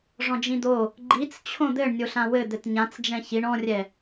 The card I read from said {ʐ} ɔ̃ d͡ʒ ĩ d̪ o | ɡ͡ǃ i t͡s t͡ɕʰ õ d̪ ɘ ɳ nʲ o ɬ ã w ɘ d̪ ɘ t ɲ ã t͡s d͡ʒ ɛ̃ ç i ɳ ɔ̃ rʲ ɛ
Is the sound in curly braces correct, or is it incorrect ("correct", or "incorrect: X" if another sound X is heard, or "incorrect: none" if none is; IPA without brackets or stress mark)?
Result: correct